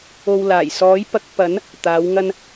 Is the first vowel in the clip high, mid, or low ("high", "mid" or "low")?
mid